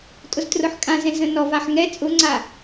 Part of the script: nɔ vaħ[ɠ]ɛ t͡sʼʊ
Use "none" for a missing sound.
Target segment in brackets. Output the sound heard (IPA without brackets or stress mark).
ŋ